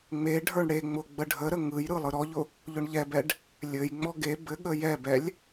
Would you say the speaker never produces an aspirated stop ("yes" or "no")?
yes